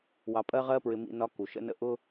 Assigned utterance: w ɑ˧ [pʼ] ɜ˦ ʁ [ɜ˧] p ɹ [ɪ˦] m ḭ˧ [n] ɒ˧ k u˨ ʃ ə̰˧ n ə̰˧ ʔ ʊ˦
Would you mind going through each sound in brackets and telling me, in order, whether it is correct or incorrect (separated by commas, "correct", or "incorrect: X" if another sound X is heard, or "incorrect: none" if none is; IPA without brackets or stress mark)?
correct, incorrect: ɜ˦, incorrect: ɪ˧, correct